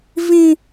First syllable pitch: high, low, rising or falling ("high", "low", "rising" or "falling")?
high